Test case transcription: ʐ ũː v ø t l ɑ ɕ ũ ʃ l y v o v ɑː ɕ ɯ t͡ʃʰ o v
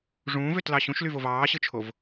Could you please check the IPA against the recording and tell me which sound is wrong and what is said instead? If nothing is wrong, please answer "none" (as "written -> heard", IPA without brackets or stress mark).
none